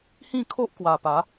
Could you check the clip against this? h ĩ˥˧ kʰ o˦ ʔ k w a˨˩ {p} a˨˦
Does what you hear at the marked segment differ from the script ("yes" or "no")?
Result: no